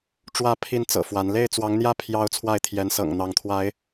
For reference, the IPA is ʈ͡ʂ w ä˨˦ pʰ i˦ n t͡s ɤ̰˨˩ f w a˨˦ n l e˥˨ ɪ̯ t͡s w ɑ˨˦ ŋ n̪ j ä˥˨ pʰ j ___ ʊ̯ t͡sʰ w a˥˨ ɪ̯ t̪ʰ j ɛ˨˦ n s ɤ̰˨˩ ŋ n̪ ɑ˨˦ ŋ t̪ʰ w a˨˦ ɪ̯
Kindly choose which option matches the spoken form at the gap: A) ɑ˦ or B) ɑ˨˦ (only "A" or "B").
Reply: A